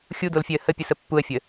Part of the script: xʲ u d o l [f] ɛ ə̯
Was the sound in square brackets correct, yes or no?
no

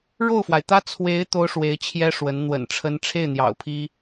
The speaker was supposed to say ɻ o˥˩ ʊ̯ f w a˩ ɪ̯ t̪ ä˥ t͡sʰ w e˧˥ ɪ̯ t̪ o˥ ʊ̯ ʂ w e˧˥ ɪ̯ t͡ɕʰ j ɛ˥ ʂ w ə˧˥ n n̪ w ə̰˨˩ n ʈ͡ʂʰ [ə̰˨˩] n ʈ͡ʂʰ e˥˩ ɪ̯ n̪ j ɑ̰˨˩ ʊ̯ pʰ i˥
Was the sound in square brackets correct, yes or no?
no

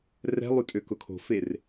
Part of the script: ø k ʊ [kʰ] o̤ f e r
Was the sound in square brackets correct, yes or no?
yes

